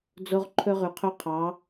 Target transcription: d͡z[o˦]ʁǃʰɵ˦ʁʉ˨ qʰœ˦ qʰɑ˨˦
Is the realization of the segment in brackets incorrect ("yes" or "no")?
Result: no